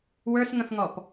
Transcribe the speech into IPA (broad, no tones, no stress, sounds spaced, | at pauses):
w ə˞ s ŋ ə̃ f ŋ ɔ p